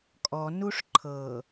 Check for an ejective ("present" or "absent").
present